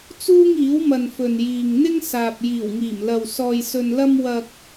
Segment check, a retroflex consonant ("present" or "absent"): absent